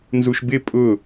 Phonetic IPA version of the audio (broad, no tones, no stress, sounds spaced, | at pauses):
n z u ʃ b ɪ pʼ ʊ